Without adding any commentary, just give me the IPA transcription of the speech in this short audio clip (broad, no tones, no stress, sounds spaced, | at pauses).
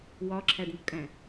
w ɒ ǁʰ æ ɖ n o̤ kʼ æ̃